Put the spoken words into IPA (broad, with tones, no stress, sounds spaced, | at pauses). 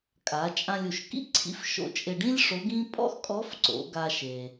kʼ a˩˧ t͡ʃʼ ã˧ lʲ u˩ ʃ k ḭ˥ ǀʰ ḭ˧˥ f ʃ o̰˧ t͡ʃʼ ɪ˧ ɖ ĩ˥ lʲ ʂ o˧˥ ɡ ĩ˥ pʼ ɔ̰˥ x kʼ ɔ˧˥ f ǀ o̰˩˧ ɡ a˧ ʃ e˩